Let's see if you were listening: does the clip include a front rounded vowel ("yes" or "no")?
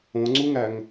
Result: no